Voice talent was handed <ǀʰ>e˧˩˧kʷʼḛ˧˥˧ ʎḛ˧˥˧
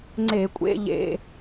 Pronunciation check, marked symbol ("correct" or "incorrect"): incorrect